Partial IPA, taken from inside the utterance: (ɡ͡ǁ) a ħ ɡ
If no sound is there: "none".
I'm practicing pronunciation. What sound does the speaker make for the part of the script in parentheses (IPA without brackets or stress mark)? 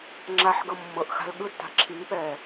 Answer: ŋ͡ǁ